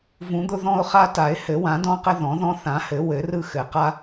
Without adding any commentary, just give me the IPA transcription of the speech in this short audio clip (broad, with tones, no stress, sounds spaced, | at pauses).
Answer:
v ũ˨˩˦ d̪ ʊ˦ ð ɔ̃˦ ʊ̯ χ a˦ t a˨˩˦ ɪ̯ h ɘ˨˩˦ w ã˨˩˦ d ɔ̃˦ q ɘ˦ ð ɔ̃˨˩˦ ð ɔ̃˦ θ ã˨˩˦ h ɘ˨˩˦ w ɘ˨˩˦ r ɯ˦ x ɘ˨˩˦ q a˦